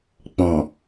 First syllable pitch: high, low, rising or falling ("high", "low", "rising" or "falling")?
low